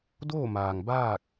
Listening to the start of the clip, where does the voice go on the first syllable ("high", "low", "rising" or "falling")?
falling